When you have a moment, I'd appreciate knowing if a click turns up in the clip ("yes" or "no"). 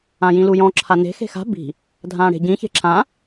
yes